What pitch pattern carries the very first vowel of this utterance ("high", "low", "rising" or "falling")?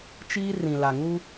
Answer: high